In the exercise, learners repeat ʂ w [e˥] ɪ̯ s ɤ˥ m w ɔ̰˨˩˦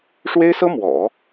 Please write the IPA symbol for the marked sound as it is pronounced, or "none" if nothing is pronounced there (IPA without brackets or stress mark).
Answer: e˥